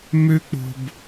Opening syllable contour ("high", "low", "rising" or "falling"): high